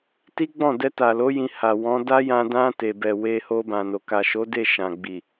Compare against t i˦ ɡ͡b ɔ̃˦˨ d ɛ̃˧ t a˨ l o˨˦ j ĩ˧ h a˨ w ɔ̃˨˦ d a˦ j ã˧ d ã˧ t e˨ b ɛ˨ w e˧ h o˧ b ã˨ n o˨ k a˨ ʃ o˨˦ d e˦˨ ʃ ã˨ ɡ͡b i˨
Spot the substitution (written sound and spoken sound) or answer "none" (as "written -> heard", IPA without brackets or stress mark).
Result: ɛ̃˧ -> ɛ˧